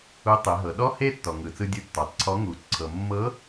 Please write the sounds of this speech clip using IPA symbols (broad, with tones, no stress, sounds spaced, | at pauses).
u˧˥ tˤ e˩˧ ɦ ɤ˩˧ ɗ ɔ˥ h e˥ tː ɔ˩ ŋ ɯ˩ t͡s ɯ˧ dʲ ɯ˧ tː ɔ˩ tˤ ǀʰ ɔ˧˥ ŋ u˩˧ ǀʰ ɤ˩ mː ɤ˧˥